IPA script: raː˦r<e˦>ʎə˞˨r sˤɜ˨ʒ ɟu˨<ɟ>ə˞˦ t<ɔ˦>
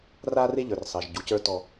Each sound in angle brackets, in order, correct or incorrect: correct, incorrect, correct

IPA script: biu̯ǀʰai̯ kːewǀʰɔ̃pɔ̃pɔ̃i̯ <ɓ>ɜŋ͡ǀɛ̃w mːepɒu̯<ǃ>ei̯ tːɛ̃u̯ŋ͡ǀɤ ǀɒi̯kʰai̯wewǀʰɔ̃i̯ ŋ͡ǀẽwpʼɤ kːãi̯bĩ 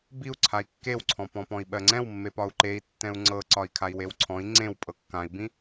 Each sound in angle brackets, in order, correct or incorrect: correct, correct

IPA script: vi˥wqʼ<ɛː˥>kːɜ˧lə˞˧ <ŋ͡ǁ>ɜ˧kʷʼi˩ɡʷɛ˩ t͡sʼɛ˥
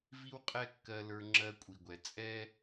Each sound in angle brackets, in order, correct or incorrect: incorrect, correct

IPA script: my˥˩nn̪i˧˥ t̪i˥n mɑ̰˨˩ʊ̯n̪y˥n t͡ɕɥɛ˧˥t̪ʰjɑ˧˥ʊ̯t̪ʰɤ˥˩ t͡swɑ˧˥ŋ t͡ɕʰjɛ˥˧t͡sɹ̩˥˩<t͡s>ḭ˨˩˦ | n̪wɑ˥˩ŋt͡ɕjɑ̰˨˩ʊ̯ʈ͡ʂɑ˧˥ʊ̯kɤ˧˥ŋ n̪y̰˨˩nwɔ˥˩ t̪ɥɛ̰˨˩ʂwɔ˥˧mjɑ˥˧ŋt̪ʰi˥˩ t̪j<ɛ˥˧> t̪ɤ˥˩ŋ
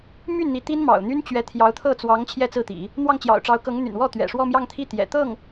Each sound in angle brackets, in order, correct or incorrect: incorrect, incorrect

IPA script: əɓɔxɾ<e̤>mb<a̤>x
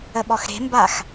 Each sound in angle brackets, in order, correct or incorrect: correct, incorrect

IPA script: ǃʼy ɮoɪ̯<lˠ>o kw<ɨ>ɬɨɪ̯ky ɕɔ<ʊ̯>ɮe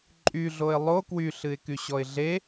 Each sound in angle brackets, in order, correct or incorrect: correct, incorrect, incorrect

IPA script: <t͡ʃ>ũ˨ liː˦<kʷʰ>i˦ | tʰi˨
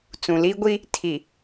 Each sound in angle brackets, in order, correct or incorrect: incorrect, incorrect

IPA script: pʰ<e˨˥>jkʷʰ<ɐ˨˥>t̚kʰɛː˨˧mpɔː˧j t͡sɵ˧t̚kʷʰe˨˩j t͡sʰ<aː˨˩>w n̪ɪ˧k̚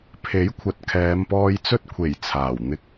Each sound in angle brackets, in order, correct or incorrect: correct, correct, correct

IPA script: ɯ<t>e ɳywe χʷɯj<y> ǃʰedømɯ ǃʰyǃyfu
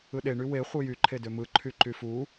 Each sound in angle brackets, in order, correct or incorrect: incorrect, correct

